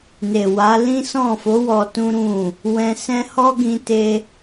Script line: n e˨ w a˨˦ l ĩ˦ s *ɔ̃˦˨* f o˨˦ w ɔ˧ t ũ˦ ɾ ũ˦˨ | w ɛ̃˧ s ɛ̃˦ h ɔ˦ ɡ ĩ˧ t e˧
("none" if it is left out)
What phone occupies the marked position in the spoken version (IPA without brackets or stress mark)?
ɔ̃˦˨